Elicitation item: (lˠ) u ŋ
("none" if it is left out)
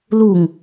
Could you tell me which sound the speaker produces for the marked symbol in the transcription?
l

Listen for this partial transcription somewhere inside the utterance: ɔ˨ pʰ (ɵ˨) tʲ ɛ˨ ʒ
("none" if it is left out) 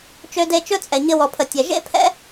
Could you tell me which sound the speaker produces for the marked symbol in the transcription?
ə˨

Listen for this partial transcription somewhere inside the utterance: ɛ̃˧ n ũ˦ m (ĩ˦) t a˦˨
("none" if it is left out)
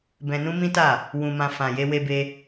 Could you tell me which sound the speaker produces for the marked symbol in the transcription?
ĩ˦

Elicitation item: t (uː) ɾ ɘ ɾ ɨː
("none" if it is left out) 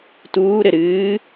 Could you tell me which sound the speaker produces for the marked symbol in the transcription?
uː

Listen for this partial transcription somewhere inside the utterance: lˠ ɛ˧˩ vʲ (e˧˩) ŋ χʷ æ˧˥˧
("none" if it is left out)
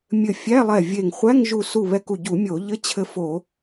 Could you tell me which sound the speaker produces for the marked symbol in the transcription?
e˧˩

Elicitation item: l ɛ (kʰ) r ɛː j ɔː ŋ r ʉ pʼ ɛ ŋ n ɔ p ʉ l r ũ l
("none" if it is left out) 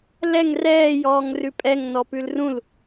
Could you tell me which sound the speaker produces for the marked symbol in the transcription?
ŋ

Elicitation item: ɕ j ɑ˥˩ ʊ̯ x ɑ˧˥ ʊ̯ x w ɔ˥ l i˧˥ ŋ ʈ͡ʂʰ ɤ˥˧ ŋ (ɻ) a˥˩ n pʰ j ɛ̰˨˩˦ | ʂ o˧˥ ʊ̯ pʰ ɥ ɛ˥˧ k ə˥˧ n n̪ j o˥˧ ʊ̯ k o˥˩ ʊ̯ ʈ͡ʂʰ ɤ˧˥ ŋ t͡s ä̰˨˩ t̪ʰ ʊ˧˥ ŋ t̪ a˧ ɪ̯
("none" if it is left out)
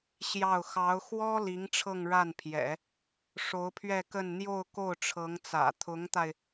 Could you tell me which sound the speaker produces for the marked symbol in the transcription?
ɻ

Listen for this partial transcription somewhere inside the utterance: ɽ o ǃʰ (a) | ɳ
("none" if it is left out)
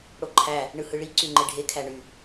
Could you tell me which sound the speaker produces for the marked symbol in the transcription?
æ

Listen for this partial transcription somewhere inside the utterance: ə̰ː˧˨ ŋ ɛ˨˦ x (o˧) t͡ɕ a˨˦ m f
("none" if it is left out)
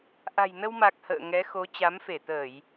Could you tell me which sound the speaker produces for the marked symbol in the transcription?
o˨˦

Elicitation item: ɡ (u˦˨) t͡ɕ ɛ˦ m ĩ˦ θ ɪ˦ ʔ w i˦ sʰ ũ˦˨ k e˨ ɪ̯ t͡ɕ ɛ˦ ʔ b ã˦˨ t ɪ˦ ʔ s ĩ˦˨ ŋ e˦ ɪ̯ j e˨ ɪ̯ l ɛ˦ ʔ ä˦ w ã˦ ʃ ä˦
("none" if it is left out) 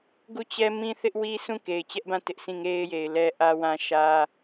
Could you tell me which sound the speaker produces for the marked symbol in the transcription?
u˦˨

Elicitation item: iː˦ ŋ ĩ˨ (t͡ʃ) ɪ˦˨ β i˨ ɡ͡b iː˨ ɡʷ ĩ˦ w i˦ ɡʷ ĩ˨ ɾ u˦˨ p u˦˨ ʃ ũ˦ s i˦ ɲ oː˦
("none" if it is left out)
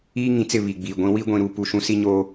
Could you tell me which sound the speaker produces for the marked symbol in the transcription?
t͡s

